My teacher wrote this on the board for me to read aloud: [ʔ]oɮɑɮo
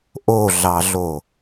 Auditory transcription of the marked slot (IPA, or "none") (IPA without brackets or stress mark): ʔ